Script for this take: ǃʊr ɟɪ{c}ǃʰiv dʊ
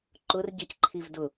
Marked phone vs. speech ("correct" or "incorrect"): correct